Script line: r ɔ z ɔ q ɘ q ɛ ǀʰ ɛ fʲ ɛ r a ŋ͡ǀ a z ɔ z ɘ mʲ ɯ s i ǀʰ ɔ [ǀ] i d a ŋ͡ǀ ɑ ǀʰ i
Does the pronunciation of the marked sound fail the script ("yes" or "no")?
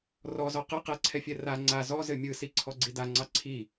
yes